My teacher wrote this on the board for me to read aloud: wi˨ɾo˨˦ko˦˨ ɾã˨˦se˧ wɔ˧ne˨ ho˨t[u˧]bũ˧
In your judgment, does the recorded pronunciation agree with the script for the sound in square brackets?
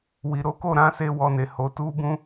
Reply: yes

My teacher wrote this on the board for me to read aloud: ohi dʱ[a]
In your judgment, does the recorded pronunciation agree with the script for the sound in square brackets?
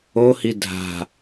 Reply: no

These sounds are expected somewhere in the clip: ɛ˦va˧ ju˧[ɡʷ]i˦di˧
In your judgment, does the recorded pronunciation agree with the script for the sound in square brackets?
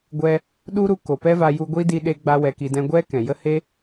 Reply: yes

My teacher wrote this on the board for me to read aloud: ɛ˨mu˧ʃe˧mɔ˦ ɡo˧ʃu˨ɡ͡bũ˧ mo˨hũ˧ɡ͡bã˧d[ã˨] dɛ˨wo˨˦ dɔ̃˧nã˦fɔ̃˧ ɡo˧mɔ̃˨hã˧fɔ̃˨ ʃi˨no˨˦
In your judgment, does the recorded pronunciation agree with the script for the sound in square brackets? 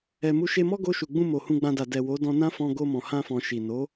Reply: no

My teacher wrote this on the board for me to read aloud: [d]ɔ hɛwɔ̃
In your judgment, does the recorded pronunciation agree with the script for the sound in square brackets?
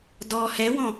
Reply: yes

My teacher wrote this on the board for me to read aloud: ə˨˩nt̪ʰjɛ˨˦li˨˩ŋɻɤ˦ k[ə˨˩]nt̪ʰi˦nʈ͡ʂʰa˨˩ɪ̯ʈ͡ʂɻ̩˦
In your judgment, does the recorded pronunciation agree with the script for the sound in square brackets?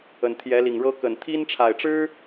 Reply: yes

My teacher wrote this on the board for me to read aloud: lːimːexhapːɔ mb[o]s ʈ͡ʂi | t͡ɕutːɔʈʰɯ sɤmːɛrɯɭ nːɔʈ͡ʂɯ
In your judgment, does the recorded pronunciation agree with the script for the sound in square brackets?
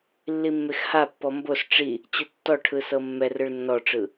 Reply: yes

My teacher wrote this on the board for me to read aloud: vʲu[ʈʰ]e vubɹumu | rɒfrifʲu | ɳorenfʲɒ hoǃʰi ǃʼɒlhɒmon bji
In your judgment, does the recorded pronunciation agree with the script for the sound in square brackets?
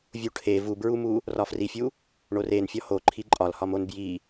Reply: yes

